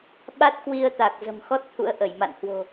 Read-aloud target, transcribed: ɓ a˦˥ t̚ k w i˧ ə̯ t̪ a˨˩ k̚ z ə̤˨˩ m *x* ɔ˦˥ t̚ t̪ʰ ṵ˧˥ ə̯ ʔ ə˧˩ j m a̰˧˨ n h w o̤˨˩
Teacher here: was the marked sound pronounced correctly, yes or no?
yes